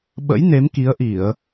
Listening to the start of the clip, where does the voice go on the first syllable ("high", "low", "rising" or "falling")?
rising